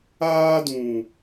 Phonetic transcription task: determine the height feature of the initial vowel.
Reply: low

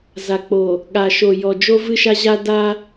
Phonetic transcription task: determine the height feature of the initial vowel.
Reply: low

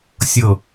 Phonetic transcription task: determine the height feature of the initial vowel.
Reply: mid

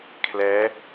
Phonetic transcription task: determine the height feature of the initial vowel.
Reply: mid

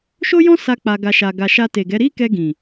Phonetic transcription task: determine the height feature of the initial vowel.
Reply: mid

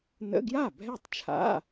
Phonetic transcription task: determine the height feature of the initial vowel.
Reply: mid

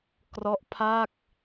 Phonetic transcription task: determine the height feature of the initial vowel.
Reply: mid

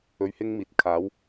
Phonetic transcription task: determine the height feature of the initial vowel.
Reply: mid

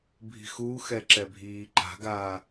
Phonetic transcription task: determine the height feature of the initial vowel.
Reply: high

